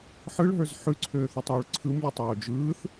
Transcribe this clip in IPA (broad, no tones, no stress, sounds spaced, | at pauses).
ħ ɯ ɭ ɦ ə˞ z ħ ʉ ǀʰ øː θ u tˤ j u ɭ ǀʰ ɯ m lʲ ɯ tˤ oː d͡ʒ ɯː θ